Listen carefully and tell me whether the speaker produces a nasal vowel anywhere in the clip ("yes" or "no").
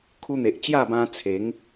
yes